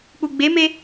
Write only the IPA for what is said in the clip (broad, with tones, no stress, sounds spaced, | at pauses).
k͡p u˨ ɡ͡b e˨˦ m e˧